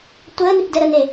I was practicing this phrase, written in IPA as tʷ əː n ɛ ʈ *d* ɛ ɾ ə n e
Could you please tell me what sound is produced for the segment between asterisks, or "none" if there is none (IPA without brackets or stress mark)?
d